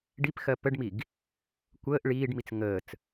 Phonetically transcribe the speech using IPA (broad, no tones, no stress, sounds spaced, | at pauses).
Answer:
ɖ i p x ɜ p ə ɖ m i ɡ | kʷ əː ʔ ɭ iː ɖ m i t͡s ŋ əː t͡s